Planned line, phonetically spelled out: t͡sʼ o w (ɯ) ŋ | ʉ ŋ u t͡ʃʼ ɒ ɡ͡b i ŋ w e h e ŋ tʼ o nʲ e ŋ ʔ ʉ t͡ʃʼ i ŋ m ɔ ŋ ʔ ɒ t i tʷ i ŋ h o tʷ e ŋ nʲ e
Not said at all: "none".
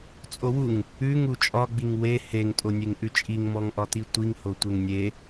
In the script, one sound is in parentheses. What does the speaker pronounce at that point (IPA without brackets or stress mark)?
u